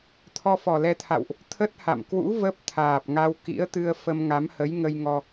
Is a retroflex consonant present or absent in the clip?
absent